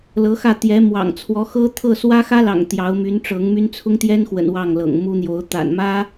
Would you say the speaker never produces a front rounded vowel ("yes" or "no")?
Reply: no